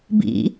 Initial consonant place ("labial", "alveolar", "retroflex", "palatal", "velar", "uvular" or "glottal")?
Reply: labial